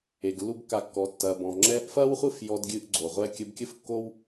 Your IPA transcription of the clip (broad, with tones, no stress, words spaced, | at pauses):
e˨ɡlːu˦bkːa˧kːɔ˨˦ tːɐ˨bɔ̃˨ ŋ͡ǁɛ˧ʔfɐ˦wχʷɨ˦˨f jɔ˧dɡʲɨ˧ʔ ɡ͡ǀo˨ʁʷɛ˦ kʲɘ˧bkʲɘ˦fkːo˦w